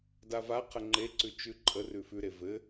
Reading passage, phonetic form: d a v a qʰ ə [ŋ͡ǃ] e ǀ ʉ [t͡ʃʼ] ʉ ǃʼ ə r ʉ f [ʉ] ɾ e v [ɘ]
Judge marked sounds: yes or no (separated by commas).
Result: yes, no, yes, yes